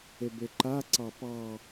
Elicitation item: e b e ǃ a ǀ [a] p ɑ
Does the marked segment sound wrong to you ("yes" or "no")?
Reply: yes